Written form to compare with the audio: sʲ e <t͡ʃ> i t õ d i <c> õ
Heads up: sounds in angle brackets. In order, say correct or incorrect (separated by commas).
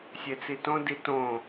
incorrect, incorrect